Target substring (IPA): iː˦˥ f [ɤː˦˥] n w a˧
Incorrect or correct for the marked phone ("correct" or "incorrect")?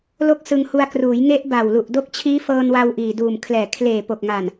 incorrect